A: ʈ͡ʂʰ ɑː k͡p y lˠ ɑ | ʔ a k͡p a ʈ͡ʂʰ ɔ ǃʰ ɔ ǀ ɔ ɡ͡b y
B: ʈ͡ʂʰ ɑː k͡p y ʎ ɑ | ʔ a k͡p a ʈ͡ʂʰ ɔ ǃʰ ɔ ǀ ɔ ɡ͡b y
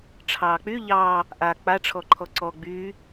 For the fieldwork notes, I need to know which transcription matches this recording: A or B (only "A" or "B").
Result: B